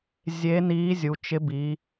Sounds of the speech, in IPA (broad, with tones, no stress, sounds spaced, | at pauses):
zʲ e˧˥ n iː˧˥ zʲ u˩˧ t͡ʃ ɪ˧˥ b i˩˧